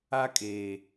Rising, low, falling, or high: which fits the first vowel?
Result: high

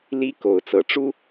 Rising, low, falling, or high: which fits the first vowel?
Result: high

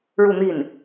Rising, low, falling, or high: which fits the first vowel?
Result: falling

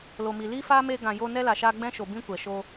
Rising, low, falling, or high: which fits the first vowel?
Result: low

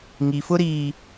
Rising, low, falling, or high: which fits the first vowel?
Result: low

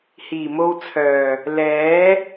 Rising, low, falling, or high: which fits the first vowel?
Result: low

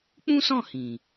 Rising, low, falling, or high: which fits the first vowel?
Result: high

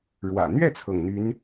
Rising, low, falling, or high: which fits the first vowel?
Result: low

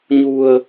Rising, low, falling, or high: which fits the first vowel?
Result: low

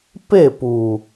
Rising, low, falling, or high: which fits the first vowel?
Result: falling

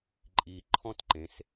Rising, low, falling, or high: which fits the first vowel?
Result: low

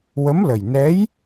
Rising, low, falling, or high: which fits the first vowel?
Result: rising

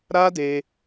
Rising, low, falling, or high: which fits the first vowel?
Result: high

